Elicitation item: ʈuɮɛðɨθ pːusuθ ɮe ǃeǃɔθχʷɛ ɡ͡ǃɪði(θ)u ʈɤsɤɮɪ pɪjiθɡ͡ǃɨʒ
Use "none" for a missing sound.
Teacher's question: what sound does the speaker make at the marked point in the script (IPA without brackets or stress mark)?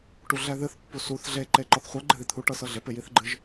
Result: t̪ʰ